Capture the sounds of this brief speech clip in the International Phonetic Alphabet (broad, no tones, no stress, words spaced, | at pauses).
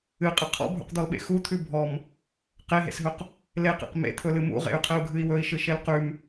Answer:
ɨqʼɘ qʰɔ̰bʱṵqd̪ɔlɓḛ xut̪ʰʉ bʱɔm | qeɦḛsɦɵq | leqḛq mḛt̪ʰɵlɨ mṵʁḛy̯qʰɘu̯ɡʱɨi̯ wɵi̯ʃɨʃel qʉm